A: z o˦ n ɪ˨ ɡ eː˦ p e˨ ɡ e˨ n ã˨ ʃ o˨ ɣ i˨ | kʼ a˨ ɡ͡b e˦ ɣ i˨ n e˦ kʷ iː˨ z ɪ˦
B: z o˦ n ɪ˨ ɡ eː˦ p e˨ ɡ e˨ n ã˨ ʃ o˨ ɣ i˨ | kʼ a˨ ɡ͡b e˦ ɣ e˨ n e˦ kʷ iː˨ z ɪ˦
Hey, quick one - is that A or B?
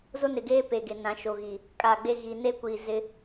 A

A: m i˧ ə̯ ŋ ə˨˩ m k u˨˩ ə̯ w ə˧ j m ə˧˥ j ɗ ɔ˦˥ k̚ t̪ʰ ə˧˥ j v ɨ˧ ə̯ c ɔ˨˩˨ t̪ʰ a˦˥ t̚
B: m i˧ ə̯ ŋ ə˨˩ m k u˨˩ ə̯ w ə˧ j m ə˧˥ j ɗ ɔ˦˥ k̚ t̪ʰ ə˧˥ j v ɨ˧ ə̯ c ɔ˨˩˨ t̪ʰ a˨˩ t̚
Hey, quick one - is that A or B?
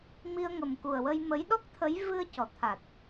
B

